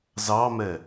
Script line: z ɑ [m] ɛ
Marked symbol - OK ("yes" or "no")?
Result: yes